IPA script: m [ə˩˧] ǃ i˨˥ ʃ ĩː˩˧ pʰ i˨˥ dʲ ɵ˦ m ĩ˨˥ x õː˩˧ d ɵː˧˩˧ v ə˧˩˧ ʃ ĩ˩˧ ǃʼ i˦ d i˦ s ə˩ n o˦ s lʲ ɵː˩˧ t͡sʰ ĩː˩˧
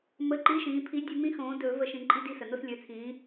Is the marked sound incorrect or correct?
incorrect